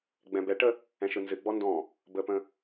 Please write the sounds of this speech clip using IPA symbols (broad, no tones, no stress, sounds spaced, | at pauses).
ɡ͡b ɛ̃ b ɛ ʈ ə | ɛ̃ ʃ ɯ n z ɨ ɡ͡b ɔ n d ɔ̃ | b ə p ə̃